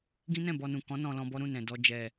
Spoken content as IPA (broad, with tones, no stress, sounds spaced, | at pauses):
ɡ ĩ˦ n ɛ̃˦˨ b ɔ˧ n ũ˨ k ɔ̃˨˦ n ɔ̃˧ l ɔ̃˧ b ɔ˦ ɾ ũ˦˨ n ɛ̃˨ d ɔ˧ d͡ʒ ɛ˨